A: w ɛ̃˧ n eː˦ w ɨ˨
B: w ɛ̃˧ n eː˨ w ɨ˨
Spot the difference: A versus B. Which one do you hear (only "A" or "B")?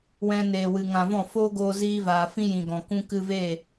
B